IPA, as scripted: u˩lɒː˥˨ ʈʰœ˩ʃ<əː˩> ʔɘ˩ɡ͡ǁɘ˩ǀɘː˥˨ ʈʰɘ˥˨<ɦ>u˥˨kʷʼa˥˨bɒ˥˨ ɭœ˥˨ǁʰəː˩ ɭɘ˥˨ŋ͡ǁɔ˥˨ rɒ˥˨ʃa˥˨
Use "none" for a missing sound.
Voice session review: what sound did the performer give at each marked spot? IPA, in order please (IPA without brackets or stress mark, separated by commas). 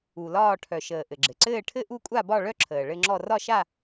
əː˩, ʔ